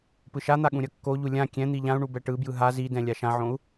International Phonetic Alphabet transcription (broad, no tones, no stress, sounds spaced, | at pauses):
p ɯ ʃ a n̪ a ɠ ũ ɾʲ ʌ kː o ʎ u lʲ ã kʲ ɛ̃ n̪ i ʎ ã u̯ ɳ u b ɛ ʈ ɯ b j ɯ ɦ a z i d ɛ̃ lʲ a ʃ ã ʕ õ u̯